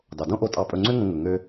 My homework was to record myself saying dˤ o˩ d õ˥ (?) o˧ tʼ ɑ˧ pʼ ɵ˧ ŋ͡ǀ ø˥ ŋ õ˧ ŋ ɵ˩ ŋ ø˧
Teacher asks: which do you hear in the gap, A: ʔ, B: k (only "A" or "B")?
A